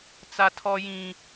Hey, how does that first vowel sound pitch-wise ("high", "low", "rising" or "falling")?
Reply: high